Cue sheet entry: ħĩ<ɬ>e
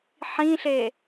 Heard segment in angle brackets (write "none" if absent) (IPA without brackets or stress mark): ɬ